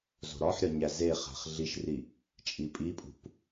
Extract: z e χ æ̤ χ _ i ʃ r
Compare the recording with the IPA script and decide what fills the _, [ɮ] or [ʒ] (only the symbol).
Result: ɮ